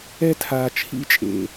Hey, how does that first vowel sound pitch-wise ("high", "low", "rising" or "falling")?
high